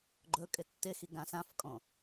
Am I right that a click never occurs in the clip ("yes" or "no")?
no